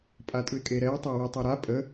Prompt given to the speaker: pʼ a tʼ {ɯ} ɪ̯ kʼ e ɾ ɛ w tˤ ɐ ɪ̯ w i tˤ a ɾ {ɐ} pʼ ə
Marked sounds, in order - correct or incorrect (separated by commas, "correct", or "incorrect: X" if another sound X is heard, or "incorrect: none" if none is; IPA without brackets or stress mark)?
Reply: correct, incorrect: a